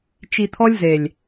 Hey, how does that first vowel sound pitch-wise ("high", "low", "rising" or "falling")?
low